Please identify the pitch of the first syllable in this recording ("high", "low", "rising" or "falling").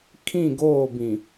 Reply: falling